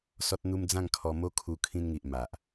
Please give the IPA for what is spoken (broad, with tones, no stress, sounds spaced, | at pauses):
s ɔ˦ t̚ n̪ u˦ m d͡z ã˥˧ ŋ kʰ ɔ˧ m o˦ kʰ u˧ kʰ ĩ˧ n ŋ i˨ ʔ m a˨ ʔ